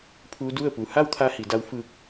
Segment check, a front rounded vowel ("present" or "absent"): absent